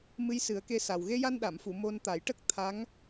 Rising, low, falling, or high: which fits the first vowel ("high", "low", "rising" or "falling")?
rising